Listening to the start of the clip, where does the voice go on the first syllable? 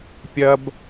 high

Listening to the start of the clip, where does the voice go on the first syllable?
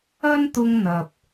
high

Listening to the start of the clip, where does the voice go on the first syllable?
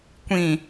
low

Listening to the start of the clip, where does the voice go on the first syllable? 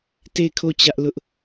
falling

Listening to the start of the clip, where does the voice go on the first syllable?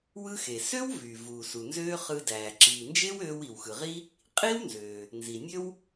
high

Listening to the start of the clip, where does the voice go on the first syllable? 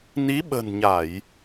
rising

